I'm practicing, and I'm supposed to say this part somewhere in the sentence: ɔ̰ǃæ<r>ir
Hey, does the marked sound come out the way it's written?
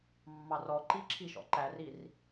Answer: yes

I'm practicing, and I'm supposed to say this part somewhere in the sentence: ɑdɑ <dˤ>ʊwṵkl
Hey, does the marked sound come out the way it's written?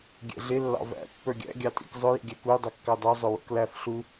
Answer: no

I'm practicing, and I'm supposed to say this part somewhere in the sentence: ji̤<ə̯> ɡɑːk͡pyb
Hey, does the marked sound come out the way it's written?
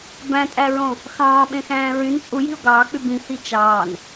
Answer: no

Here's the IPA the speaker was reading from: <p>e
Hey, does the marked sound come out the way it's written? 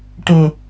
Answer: no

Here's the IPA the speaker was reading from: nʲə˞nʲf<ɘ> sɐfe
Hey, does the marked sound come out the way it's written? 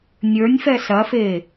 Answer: no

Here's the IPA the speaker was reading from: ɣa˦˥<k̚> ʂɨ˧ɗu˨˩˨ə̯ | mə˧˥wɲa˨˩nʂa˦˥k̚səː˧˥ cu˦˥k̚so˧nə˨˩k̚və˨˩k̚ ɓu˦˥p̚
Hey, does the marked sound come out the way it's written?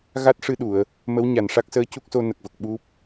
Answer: no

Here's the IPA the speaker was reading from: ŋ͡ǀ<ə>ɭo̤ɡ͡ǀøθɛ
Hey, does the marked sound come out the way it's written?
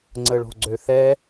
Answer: yes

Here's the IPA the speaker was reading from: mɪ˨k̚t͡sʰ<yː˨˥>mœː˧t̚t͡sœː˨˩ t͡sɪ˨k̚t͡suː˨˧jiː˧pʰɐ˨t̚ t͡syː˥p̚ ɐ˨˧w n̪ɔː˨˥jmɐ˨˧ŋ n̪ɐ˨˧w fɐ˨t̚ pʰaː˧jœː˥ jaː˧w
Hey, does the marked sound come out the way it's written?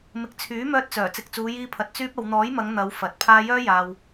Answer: yes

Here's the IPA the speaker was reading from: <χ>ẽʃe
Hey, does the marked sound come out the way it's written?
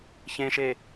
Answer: no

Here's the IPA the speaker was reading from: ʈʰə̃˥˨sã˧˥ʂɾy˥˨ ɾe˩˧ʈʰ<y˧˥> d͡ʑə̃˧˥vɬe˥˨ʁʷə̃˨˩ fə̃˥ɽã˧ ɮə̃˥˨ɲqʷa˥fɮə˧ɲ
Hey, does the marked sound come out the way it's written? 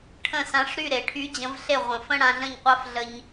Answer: yes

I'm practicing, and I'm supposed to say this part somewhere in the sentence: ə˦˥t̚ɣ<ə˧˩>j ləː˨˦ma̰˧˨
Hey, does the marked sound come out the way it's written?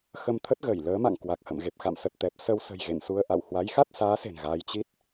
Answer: yes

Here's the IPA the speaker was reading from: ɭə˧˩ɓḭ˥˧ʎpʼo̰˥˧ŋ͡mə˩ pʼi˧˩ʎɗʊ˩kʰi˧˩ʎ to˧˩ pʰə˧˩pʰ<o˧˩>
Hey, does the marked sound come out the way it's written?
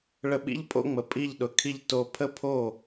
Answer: yes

